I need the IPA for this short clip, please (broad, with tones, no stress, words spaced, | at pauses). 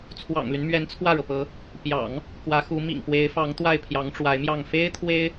t͡sʰwɑ̰˨˩ŋly˦n mɥɛ˧˥nt͡sʰwä˥˩ɻɤ˩pɤ˧˥ | pjɑ̰˨˩˦ŋ | kwä˧˥xu˧˥ mḭ˨˩ŋpwe˧˥ɪ̯fɑ˧˥ŋ t̪wa˥˩ɪ̯pʰjɑ˧˥ŋʈ͡ʂwa˧˥ɪ̯mjɑ˥˩ŋ fe˥ɪ̯t̪ʰwe˥ɪ̯